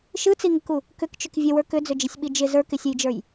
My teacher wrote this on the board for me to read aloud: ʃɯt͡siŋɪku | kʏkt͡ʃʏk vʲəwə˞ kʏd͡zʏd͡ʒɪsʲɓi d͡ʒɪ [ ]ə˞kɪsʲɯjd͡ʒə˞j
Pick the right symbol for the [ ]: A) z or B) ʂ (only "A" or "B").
A